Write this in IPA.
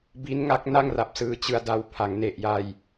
bi˦˥nŋa˦˥k̚ na˥˩ŋra˨˩p̚sɯː˧t͡ɕɯ˧a̯ da˧wpʰa˩˦ŋne˨˩ʔja˧j

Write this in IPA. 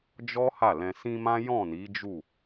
d͡ʒɔ˦ ha˦˨lɛ̃˧ sĩ˧mã˦ jɔ̃˦˨ni˨˦d͡ʒu˦˨

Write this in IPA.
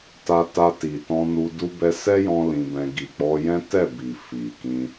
ta˧ta˧ ti˨tɔ̃˧nu˧ du˧bɛ˧ sɛ˦jɔ̃˧ lĩ˧bɛ̃˧ ɡi˨k͡pɔ˧jɛ̃˦ tɛ˦˨bi˨ fi˨kĩ˧

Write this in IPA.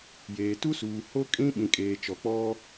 jeː˨ tu˦suː˨ ho˦kʼĩ˦ ɓĩ˨kʼeː˨ t͡ʃɔ˨k͡pɔ˦

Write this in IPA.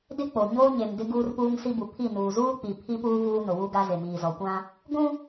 dɪ˦k͡po˨ɲoː˦ ɲe˨mdɪ˦ ɡuː˦rpuː˦ŋsi˦ bu˨pʰi˦˨ nuː˨zuː˦k͡pi˨ pʰi˦puː˦ vuː˦nʊ˨wu˦ɡa˦ zɪ˨miː˨zɔ˨kʷã˦ | ɡʷũ˦

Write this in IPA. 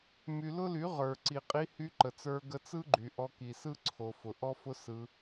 my˨lʊ˦ly˨˦ ʁə˞˨ ǀi˨qʼi˧hy˧ ǃə˨t͡sə˞˧ ɡə˧t͡sɯ˦ɡ͡ǃy˨ ʔɔ˧ki˨sɯ˦ ǀʰo˨fʊ˨ ʔɔ˦fʊ˦ sɯ˧

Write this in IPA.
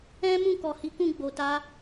ɛ̃˦ mũ˦˨kɔ˨hi˨˦kũ˦˨ ɡ͡bo˨ta˧

